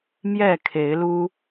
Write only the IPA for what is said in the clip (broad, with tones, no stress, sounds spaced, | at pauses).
m j ɛ˥˨ kʰ e˨˦ ɪ̯ l u˦